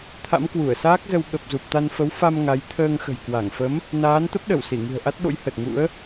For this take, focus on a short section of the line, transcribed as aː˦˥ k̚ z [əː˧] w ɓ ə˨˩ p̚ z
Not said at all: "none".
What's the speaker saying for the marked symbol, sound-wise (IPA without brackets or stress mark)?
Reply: ə˧